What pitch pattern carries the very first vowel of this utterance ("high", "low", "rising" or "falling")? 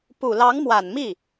low